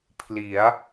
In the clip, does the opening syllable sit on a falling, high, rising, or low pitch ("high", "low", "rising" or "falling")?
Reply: rising